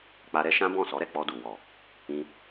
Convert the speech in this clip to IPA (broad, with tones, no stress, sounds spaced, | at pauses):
k͡p a˧ ɾ ɛ˦ ʃ ã˦ b ɔ̃˦˨ s ɔ˨˦ ɾ ɛ˦˨ k͡p ɔ˧ d u˨ w ɔ˨ | ĩ˧